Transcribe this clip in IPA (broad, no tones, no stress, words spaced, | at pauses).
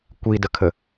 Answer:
kʷidəkʰə